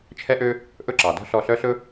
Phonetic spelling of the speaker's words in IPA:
t͡ʃʰ ɛ˦ ʔ ø˦ | ʔ ɵ˦ ǁ ɑ˨ d ɔ̤˦ ɬ ɔ˦˨ ɬ œ˦ ɬ ɵ˦

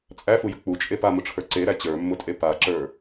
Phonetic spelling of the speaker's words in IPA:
t͡sʼ æ f u j ə k͡p u t͡ʃʼ e p a m ʊ ʈ͡ʂʰ ə˞ ǀ e ɾ æ t͡ɕ ə˞ mː ʊ tʼ e p a ǁ ə˞

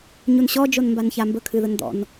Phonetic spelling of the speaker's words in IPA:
ɲ u n ɕ ɔ d͡ʒ o n m b a n ç a m b ə kʰ ɨ ð ə n d̪ ɔ̰ n

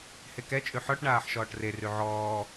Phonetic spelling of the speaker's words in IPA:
h e k ɛ t͡ʃʼ ʉ ħ ɔ ʈ ɳ aː ħ ʃ ɔː ʈ r e r ʉ ʕ ɔː

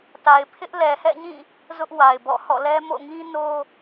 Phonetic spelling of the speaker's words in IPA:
t a˨ ɪ̯ pʰ ɪ˦ ʔ l ɛ˨ h ɛ̰˦˨ ɲ ĩ˦˨ | z ʊ˦ ʔ w a˨ ɪ̯ b ɔ̰˦˨ h ɔ̰˦˨ l ɛ˦ m o̰˦˨ ŋ ĩ˦ n o˦

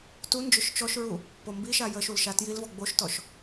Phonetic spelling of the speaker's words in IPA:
t u n d͡ʒ ʊ ʃ t͡ʃ ɔ ʃ ɹ u | p o m b i ʃ a j ə ʃ u l ʃ a t j i l v ɔ ɡ͡b o ʃ t ɔ ʃ

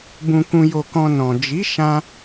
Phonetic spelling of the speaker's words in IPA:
b ũ˧ k ũ˧ j o˧ k ɔ̃˧ n ɔ̃˨ d͡ʒ i˨˦ ʃ ã˦

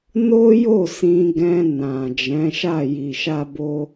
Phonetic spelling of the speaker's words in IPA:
n o˦ j o˦˨ s ĩ˧ ɡ ɛ̃˧ n ã˨ d͡ʒ ɛ̃˨˦ ʃ a˦˨ j i˨ ʃ a˧ b o˧

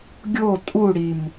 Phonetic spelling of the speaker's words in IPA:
ɡʲ o tʼ u ɽ i m

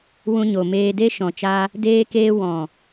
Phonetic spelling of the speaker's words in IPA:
w ũ˧ ɲ o˨ m eː˧ d e˦ ʃ ɔ̃˨ t͡ʃ a˧ | d eː˧ k eː˧ w ɔ̃˨

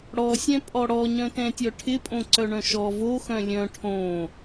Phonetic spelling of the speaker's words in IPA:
ɽ ɔ sʲ ɛ̃ pʼ ɔ ɽ ɔ ɲ œ̃ t ɛ̃ tʲ œ ʈʰ ɪ pʼ õ ǀ œ ɳ œ̃ ʃ ɔ v o x œ̃ lʲ œ̃ ʈʰ õ

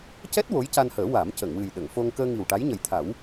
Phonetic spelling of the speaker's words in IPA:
c ɛ˦˥ t̚ w o˧˥ j c a˧ n h əː˨˩˦ w a˨˩˦ m c ə˨˩˨ ŋ w ɨ˨˩ j ɗ ə˨˩˨ ŋ f o˧ ŋ k əː˧ ŋ i˨˩ w ʈ a˧˥ j ɲ ə˨˩ j t̪ʰ a˨˩˦ w

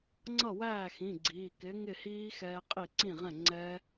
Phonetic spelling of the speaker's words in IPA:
ŋ͡ǀ ʌ˥˩ w æː˥˩ x ĩ˩˧˩ ɡ͡ǀ iː˩˧˩ k ɪ˨˥ ŋ ɪ˥˩ h iː˦˥ x ɛː˦˥ qʼ i˥˩ ǀ ĩ˥˩ ʁ ɛ̃˥˩ ŋ͡ǀ ɛː˦˥

